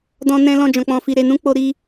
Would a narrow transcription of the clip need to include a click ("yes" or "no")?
no